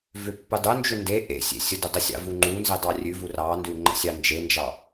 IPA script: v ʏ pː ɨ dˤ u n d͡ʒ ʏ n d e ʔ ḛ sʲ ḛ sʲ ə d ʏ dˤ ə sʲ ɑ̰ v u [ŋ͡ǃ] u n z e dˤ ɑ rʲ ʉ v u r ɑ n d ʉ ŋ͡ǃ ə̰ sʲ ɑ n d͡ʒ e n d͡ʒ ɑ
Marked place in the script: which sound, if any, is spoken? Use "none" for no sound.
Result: ŋ͡ǃ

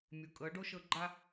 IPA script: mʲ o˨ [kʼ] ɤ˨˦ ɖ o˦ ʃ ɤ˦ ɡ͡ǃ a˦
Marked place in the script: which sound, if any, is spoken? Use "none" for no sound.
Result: kʼ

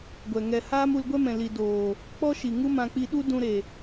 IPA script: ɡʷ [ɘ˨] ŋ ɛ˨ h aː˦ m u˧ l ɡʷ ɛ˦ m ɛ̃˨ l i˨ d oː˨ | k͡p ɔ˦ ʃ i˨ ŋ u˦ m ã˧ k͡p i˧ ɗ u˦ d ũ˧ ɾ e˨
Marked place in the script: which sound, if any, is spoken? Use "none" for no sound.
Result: ɛ˨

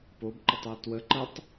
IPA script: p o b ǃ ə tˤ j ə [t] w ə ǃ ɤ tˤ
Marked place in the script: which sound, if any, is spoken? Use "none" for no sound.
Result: t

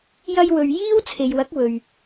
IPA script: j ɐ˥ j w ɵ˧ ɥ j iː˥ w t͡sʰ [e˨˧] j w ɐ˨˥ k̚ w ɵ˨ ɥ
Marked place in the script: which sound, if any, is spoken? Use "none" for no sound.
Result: e˨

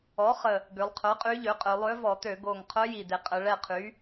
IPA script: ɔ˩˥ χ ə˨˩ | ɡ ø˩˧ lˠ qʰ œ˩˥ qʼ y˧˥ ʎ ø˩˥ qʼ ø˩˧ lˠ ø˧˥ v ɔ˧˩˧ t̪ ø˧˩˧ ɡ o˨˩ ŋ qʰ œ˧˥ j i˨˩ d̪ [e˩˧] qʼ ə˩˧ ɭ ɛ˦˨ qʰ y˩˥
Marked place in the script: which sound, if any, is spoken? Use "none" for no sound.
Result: e˩˧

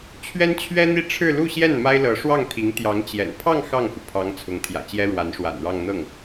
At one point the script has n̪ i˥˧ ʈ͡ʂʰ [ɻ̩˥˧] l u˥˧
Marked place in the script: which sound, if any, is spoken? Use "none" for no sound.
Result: ɻ̩˥˧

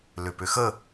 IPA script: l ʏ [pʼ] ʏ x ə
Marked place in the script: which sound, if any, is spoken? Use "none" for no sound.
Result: p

